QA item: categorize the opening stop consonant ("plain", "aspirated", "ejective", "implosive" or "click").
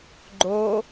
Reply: click